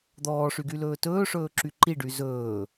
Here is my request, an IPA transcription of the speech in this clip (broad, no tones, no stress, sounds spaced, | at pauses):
d̪ ɔː ʂ y ɡ y l ɵː t ɵː ʂ ɵː ǁ y ǃ i ɖ y z ɵː